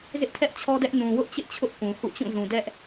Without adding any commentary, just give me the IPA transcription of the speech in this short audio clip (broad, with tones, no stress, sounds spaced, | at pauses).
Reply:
z ɪ˦ ʔ tʰ ɛ˦ ʔ t͡ɕʰ ɔ˦ d ɛ˦ ʔ n ũ˨ w ʊ˦ ʔ t͡ɕ ɪ˦ ʔ t͡ɕʰ ʊ˦ ʔ k ũ˨ h ṵ˦˨ t͡ɕ ũ˦˨ z ũ˨ d ɛ˦ ʔ